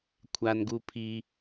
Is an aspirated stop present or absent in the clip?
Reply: present